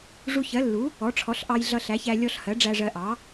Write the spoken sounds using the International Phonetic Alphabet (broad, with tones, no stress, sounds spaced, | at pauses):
ʐ u˧ ç ɜ˩˥ lː u˩˥ | ɔ˩˥ ʈ͡ʂʰ ɔ˩˥ ɬ ʔ ɑ˧ j ɮ ʌ˧ ɬ æ˩˥ ç æ˧ lʲ ɔ˧ ɬ h ɜ˩˥ ɖ͡ʐ æ˧ ʐ ɜ˧ ʔ ɑ˩˥